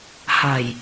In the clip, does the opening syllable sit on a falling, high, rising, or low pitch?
low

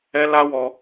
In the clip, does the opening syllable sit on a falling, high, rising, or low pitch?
high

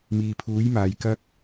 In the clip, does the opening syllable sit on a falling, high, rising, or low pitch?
low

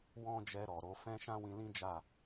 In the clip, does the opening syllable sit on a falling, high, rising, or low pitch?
high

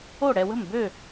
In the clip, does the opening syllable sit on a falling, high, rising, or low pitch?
falling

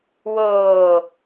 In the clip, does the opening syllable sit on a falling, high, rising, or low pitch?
low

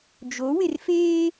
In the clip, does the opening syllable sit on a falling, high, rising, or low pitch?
rising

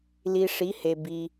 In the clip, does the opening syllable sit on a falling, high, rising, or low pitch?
low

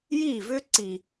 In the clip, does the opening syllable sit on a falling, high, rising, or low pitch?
falling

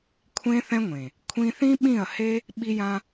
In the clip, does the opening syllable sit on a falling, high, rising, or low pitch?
high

